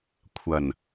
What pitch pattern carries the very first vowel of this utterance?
low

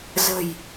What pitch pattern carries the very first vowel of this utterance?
low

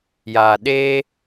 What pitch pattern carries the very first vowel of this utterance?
low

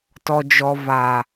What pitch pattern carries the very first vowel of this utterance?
low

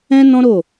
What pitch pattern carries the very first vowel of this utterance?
high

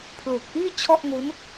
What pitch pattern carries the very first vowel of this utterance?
low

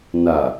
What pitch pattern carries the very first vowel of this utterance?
low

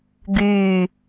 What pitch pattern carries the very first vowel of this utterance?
low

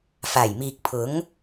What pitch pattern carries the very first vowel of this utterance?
low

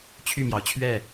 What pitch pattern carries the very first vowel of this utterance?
falling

